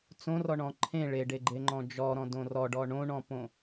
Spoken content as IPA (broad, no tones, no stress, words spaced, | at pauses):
t͡sõrɔɳɔ̃ ǃʰẽ ɭeɖeɡ͡ǃeŋ͡ǃɔ̃ d͡ʒɔɾɔ̃dõ rɔɖɔ ɳõɳɔ̃põ